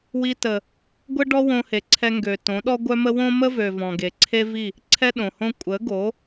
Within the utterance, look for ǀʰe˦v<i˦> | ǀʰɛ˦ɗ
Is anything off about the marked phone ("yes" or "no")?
yes